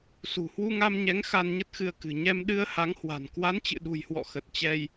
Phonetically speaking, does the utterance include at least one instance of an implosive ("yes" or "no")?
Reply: yes